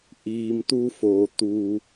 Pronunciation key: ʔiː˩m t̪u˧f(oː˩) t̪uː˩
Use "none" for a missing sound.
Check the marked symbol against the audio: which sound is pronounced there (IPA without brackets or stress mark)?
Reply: oː˩